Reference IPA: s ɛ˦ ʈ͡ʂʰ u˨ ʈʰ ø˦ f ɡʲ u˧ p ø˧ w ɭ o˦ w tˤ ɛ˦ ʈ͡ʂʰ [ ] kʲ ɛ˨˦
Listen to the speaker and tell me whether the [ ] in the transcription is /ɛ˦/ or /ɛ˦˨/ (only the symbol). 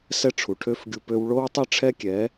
ɛ˦